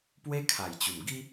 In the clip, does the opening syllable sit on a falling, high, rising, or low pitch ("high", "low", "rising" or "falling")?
high